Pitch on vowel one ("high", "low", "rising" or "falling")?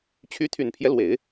rising